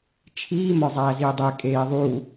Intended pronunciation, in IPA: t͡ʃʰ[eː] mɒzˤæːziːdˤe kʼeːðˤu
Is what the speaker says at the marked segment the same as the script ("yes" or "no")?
no